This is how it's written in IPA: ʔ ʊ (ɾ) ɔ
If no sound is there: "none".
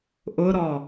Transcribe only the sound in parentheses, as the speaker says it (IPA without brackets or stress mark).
ɾ